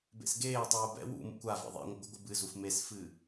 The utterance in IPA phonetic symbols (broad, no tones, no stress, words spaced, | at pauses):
bḛsɡeːtˤuː bɛ̰ wṵmṵkʷ a vḛðˤḛŋʷɐ ɡʷɨɡʷɨbɨzuf mesfɨ